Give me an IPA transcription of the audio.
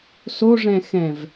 s o ʐ ɛ̃ x ɛ̃ v

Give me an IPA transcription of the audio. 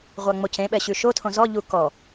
ʁʷ a ŋ͡m o c ẽ ɓ ɛ ɕ ʉ ʃ o tʰ õ z ɔ ʎ u k ɔ

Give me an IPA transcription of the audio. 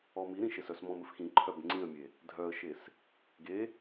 ɔ m i ɾ ĩ ʃ e s œ s m ɔ̃ m ɘ f x ĩ ǃʰ œ b ŋ͡ǀ ĩ ə̯ mʲ e | dʱ œ ə̯ ʃ e s | ɡ e

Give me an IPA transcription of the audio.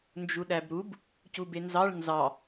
n d͡ʒ u ɗ æ b ɾ u b | c u b e n z ɑ ɭ n z ɑ

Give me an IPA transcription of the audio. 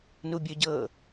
n u bʲ ɵ ɟ ɤː

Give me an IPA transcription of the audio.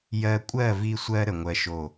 j ɜ˧ kʷʼ ɜ˦˨ v i˧ sʷ ɜ˧ ɾ ə˨ ŋʷ ɜ˧ ʃ o˦˨

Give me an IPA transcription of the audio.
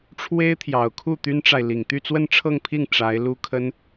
ʈ͡ʂʰ w e˥ ɪ̯ t̪ʰ j ɑ˨˩ ʊ̯ kʰ u˥˩ t̪ y˥ n ʈ͡ʂ a˨ ɪ̯ l i˨˩ ŋ t̪ y˥˧ t͡s w ə˥˧ n ʈ͡ʂʰ ɤ˥˧ ŋ pʰ i˥˩ ŋ ʈ͡ʂ a˧˥ ɪ̯ l u˥ kʰ ə˥ n

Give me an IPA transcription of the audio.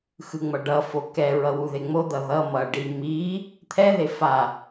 x ɯ ŋ͡m ʌ ɖ ʌ f o k ɛ ɹ ʌ w u ð e ŋ͡m o d̪ ʌ ð ʌ m ʌ ɖ i m i | t̪ʰ ɛ ð e f a

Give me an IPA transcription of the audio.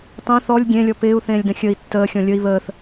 tˤ ẽ θ ɔ lʲ ɡʲ ẽ lʲ ɔ p ɪː u̯ θ ẽː lʲ d ə̃ xʲ ə i̯ tː əː xʲ ɔ̃ lʲ ə i̯ β əː θ

